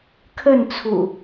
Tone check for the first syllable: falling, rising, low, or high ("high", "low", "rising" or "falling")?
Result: falling